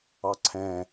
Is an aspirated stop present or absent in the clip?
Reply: present